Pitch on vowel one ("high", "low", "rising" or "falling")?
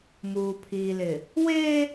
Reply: low